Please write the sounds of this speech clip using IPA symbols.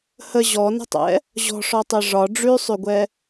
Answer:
hə ʑɔnə̤tˤɛ̰ | ʑɔ̤ʂɔtˤe ʐɒ ɖ͡ʐʉsˤʉɡʷɛ

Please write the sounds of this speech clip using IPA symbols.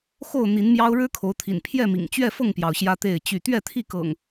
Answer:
xo˥˨ʊ̯ n̪i˨˦nmjɑ˦ʊ̯ ɻɻ̩˦kʰo˨˦ʊ̯ t̪ʰḭ˨˩n pʰjɛ˥˨mḭ˨˩ŋ t͡ɕɥɛ˥˨fɤ˥˨ŋpjɑ˩ʊ̯ ɕjä˦t̪e˥˨ɪ̯t͡ɕy˥˨ t̪ɥɛ˥˨t̪ʰi˥˨kɤ̰˨˩ŋ

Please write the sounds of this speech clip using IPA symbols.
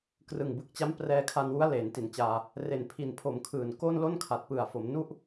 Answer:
krɯ˨˩ŋbɯ˨˩k̚t͡ɕa˦˥m prɛː˧kʰa˧nwu˦˥a̯ leː˩˦nti˩˦nt͡ɕaː˧ | re˨˩npʰi˨˩npʰo˩˦m kʰɯː˨˩nko˥˩n lo˥˩nkʰa˨˩t̚pɯ˨˩a̯fo˩˦m nu˥˩ʔ

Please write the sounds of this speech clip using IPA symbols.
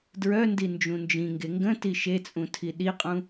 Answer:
dɹœndi nd͡ʒũnd͡ʒĩŋɡe ŋɡə̃ tiʃet͡sʼũ tʰiɗiqʼũ

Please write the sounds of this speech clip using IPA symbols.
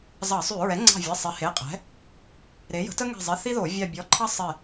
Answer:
zɑ˧˩˧sˤy˧˩˧ ɹɛ˩˥ŋ͡ǀɑ̤˧˩vʲe˩˧˩ sˤe˩˥he˩˧˩qʼɛ̤˩˥ | ɾe˩˥jə̤˩˥tə˥ ŋɛ̤˧˩zˤi˩˧˩ θi˥ðo˧˩˧ vʲɑ˧˩bʲɔ˩˧˩ǃʰɑ˥ sˤe˧˩

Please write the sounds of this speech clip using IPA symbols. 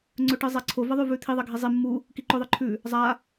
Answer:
ŋ͡ǀɵʈɨzˤaǀʰo vɐðˤʉvʉt̪ʰi ðˤɐɡʱizˤi mːu | kiǃɵðˤɨ ǃʰʉ | zˤa

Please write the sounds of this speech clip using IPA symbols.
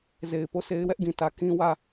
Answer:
ze˨ɪ̯po˦˨ se˦ɪ̯wɛ˦ʔɡĩ˨ tä˨ kĩ˦wä˦˨

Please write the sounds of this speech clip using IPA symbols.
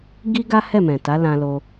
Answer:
ɡi˦ɡa˦ hɛ˦˨mɛ̃˨ta˨˦ lã˧lo˧

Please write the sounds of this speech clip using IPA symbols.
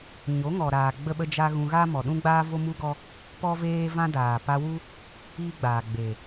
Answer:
ɲo˨˦ŋɔ˨ɾaː˨ ɡ͡bə˦ɓə˦d͡ʒa˦ ɣũ˧ ɣa˦mɔ˨ɗũ˦ɡ͡baː˦ vo˦mu˦ɡɔ˦ | pɔ˦ veː˦vã˦daː˨ pa˧wu˦ | iː˦ɡ͡baː˨ ɡ͡beː˨

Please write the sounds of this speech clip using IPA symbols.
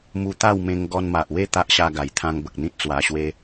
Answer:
mu˧t̪a˥˧wmẽ˧ŋ ɡɔ˧nma˨ʔwe˦ t̪a˦ʔɕa˧ɡa˨˩jt̪ʰã˧ŋ bə˨k̚n̪ĩ˦t̚t͡swa˧ɕwe˦

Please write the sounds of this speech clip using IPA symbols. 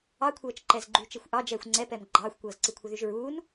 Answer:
ɑkʷʰɤːt͡ʃ ǃɛzɡ͡ǃyt͡ʃexʷ ʔɑd͡ʒɛːxʷ ŋ͡ǀɛpɛm ɡ͡ǃɑːxʷkʷɤːzǀi kʷʰɤðyʒɹuːn

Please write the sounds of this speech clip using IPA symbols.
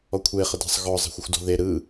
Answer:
ɔkʷʰe χədɛ̤sˤ ɣɔ zˤe̤xʷəxʷdɔ̤ðe ɾɯ

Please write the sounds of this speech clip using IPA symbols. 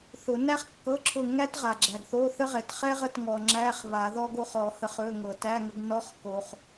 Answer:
θʊ˨˩˦ næ˥χkːɤ˧˥˧ ǁʰʊ˦˨ŋæ˥tʁa˩ ɡ͡ǁæ˩ɡθo˧˥˧θə˥ʁɛ˩t χɛ˥ʁə˦˨t ŋɔ˩ŋ͡ǁæ˧˥˧χ βa˨˩˦ðɔ˥ɡo˥χɔ˨˩˦ hə˦˨χɵ˧˥˧ŋɤ˩ tæ˧˥˧ŋə˨˦ɡnɔ˧˥˧χ ko˩χ

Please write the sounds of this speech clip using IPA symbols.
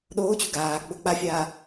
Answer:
ɗoːt͡ɕu ɡaːɡ͡bo k͡pafʲaː

